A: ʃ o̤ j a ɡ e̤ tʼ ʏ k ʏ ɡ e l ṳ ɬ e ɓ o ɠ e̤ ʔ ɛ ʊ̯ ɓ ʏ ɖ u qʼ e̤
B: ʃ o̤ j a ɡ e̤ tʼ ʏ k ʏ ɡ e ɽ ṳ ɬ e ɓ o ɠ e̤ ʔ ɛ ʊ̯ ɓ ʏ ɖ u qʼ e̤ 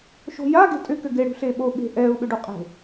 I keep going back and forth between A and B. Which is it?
B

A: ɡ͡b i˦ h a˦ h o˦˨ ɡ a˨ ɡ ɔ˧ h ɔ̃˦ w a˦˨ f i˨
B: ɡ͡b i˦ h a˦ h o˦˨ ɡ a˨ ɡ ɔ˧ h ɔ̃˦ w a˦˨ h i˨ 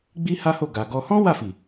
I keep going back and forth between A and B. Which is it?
A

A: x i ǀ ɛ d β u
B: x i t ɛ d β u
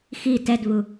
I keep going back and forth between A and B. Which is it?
B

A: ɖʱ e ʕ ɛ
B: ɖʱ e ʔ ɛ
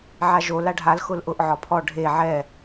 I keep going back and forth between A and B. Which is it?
A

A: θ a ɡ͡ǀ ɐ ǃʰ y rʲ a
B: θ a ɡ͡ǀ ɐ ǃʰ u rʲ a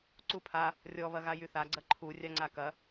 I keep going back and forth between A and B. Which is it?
B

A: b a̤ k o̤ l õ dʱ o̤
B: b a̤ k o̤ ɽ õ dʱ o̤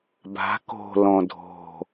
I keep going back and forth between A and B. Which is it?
A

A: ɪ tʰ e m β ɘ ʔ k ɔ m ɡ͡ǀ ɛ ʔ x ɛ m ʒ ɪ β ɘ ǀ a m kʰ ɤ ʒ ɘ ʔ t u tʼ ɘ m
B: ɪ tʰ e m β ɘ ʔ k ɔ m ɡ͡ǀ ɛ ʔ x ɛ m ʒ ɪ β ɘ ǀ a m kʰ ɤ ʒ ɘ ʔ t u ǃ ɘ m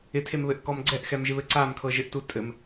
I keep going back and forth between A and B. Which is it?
A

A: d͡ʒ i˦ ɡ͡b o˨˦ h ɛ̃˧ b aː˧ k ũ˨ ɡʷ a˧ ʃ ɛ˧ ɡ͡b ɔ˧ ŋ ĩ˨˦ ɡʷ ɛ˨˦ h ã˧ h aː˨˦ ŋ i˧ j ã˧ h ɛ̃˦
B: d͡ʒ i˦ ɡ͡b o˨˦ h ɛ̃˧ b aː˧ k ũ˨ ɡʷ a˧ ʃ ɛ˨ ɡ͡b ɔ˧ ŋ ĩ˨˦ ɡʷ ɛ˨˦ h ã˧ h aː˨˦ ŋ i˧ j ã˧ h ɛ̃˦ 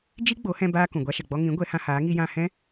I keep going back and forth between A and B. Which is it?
B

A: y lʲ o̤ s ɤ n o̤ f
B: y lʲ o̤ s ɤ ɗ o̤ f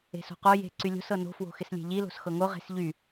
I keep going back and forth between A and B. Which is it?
A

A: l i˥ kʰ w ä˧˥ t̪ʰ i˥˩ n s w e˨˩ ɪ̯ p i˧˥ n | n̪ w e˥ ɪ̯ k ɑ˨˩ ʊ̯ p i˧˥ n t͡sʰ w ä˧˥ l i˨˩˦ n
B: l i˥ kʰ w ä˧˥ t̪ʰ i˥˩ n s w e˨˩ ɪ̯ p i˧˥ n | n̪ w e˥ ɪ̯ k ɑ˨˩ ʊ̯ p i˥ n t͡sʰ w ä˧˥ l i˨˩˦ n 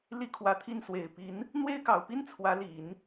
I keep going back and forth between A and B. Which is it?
B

